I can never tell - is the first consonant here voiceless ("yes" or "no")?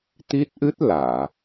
yes